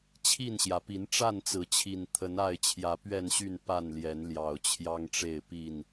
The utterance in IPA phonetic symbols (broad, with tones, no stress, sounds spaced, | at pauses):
t͡ɕʰ i˥˨ n ɕ j ä˩ p i˨˦ n ʈ͡ʂ a˥˨ n t͡s ɹ̩˨˦ t͡ɕʰ i˨˩ n t̪ʰ ə˨˦ n a˥˨ ɪ̯ t͡ɕʰ j ä˨˦ p ɥ ɛ˥˨ n ɕ y˥˨ n p a˥˨ n l j ɛ˨˦ n l j ɑ˨˩ ʊ̯ t͡ɕʰ j ɑ˦ ŋ ʈ͡ʂ e˥˨ ɪ̯ p i˥˨ n